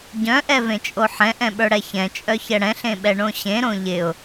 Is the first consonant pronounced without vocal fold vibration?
no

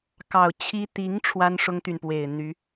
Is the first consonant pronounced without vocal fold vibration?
yes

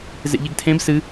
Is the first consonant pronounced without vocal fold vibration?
no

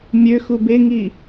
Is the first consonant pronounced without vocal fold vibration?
no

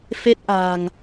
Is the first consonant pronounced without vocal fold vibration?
yes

